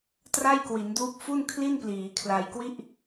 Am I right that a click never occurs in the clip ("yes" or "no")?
yes